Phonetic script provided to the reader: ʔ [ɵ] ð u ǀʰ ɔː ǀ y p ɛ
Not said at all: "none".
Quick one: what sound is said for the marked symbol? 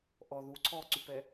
ɔ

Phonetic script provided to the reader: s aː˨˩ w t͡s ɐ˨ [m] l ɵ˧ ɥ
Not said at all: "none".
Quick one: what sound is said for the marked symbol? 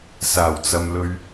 m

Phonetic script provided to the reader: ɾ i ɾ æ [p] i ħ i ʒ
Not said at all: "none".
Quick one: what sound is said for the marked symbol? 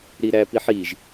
p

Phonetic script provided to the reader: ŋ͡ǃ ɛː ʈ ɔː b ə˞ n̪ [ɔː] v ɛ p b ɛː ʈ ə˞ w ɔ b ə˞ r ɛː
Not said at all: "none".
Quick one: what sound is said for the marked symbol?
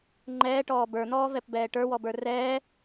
ɔː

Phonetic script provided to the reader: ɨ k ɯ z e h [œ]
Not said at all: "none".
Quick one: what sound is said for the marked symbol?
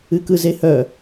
œ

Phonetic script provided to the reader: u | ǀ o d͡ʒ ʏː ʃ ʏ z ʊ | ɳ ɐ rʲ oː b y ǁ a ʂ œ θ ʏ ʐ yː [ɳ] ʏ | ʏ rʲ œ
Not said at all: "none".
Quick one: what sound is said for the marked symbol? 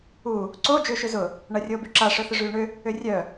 ɳ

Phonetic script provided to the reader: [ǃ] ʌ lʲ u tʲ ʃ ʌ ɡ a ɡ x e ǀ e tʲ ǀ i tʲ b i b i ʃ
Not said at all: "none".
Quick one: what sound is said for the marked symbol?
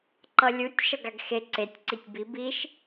ǃ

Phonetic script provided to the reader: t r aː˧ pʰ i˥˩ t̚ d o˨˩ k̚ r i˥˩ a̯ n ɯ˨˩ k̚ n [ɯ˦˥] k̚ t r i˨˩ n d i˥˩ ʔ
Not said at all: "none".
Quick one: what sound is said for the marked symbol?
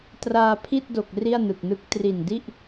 ɯ˦˥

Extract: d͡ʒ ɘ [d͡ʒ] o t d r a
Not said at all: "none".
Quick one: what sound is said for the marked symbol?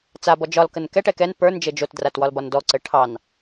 d͡ʒ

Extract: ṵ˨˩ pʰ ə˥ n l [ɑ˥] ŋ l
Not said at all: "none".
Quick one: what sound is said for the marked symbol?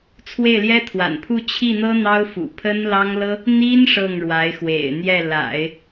ɑ˥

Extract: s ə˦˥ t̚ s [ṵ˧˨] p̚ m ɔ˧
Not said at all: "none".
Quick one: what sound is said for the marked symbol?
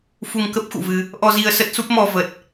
u˦˥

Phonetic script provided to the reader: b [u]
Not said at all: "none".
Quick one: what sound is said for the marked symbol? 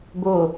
o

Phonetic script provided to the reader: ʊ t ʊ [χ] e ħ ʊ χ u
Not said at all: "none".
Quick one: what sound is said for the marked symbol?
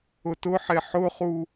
ħ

